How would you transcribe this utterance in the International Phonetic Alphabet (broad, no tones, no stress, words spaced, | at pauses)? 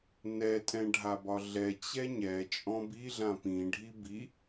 nɛtʼɛ̃ ɖʱabɒɮɛ t͡ɕɛɲɛ t͡ʃʼɔ̃biɮã pĩ ɖʱibi